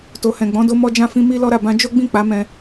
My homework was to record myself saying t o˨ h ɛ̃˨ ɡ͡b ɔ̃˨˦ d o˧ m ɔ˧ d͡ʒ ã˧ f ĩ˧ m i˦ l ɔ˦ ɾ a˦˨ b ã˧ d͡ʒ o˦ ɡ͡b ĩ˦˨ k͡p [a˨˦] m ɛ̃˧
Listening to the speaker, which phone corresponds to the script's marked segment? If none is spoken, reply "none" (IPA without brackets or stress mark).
a˨˦